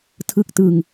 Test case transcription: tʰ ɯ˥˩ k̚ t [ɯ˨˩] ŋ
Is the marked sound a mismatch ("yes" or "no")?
yes